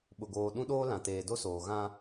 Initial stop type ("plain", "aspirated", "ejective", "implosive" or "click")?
implosive